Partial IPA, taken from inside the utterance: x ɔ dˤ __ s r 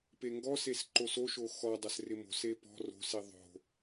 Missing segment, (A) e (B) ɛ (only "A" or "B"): B